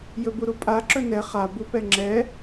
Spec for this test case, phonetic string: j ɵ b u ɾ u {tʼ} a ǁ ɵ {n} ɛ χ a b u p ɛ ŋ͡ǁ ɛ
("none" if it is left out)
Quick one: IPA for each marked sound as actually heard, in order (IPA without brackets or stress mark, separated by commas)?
pʼ, n